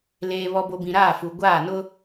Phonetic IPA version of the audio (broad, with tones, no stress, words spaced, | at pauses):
leː˨βɔ˨bo˨ bĩ˨ɾaː˦˨fu˨ ɡʷaː˦˨nʊ˦